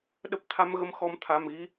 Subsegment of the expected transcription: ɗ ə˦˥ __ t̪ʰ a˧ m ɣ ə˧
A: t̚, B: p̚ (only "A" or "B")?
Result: B